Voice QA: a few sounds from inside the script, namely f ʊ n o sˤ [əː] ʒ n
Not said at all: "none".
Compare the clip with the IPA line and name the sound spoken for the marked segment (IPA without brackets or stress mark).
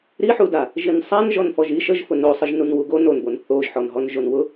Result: ə